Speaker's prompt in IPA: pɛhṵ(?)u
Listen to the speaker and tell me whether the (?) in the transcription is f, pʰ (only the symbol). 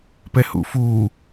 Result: f